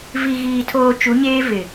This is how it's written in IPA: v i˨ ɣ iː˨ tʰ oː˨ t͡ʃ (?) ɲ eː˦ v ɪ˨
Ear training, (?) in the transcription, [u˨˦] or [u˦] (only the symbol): u˨˦